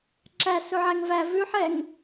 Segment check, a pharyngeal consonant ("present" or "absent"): present